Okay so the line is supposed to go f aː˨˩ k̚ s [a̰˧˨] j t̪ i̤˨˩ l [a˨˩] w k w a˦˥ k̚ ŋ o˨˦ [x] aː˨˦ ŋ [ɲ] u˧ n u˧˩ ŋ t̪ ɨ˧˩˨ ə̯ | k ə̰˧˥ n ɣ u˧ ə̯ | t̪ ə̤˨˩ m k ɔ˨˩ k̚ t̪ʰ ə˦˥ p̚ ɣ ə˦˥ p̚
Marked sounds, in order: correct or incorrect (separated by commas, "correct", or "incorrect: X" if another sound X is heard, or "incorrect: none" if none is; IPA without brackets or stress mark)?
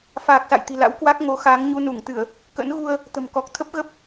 correct, incorrect: a̰˧˥, correct, correct